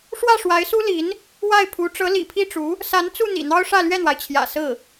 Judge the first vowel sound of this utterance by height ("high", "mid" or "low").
low